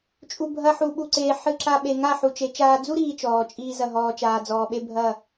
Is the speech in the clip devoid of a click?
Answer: no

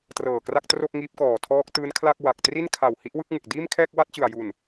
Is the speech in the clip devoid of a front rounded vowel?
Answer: yes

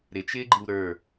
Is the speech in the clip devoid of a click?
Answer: no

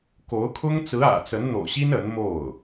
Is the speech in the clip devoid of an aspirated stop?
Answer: no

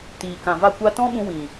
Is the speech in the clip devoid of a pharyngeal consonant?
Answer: yes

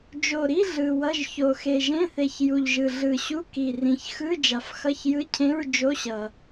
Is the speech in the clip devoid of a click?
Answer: yes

